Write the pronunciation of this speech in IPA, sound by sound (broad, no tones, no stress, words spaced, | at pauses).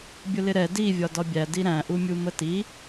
bʲʊlɪɾɛ di vʲɒdɒbʲæ diɾæ̃ ʔumʲuməti